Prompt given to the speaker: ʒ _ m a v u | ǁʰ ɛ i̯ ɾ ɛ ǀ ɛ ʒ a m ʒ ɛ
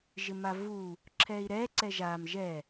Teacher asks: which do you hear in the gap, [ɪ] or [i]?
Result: ɪ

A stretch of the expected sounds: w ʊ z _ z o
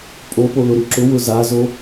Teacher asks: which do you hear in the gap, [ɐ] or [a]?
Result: a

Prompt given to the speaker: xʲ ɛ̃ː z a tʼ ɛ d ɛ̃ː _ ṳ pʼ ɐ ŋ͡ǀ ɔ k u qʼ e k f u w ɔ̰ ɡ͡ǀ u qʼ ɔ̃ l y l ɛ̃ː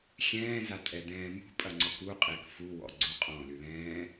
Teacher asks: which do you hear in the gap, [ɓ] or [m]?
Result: m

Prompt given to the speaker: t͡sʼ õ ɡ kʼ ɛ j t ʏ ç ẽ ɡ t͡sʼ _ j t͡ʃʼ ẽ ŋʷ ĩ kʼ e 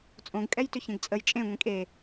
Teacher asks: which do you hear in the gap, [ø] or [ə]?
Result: ə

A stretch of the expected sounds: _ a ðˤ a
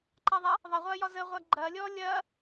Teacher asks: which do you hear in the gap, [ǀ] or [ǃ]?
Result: ǃ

